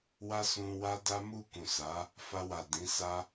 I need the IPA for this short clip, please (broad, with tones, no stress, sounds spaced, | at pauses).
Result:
w a˦ s ũ˧ w a˦ d a˦ m u˦˨ k ũ˨ s a˨˦ | f a˧ w a˨ d ĩ˨˦ s a˦